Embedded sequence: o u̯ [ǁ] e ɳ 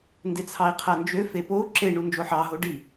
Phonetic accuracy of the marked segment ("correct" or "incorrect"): correct